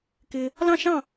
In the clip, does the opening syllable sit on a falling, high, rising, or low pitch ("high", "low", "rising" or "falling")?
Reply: low